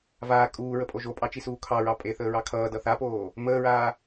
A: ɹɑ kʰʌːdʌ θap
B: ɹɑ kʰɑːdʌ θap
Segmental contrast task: A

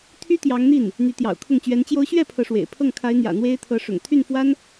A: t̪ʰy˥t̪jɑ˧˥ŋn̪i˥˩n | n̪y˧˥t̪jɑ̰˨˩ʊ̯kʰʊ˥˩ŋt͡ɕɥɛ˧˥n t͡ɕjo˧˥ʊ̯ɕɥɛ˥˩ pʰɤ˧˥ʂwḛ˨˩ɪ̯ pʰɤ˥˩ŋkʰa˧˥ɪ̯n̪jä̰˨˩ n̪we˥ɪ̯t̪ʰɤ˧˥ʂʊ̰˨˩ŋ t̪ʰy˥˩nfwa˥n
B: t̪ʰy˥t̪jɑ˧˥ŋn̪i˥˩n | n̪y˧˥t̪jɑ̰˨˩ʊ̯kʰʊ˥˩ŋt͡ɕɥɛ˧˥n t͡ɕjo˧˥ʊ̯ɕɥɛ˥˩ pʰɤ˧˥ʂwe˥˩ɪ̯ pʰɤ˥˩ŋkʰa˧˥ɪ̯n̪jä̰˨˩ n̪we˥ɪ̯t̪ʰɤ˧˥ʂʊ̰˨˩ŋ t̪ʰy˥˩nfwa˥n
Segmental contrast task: A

